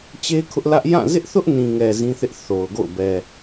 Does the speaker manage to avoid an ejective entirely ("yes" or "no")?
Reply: yes